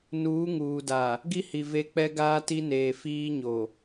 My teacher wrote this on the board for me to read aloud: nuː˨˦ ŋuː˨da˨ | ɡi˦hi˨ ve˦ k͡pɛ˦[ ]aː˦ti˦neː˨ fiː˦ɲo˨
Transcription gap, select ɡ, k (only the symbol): ɡ